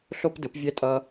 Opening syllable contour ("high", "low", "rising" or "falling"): high